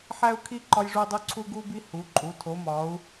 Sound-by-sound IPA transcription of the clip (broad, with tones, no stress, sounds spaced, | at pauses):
ħ æ˦ u̯ kʰ i˦ ǃ ɒ˦ j ʐ u˦ dˤ u˦ ǀʰ u˦ ɡ u˦ b i˦ h u˩˧ ǃʼ u˩˧ tʰ o˩˧ m ɒ˩˧ u̯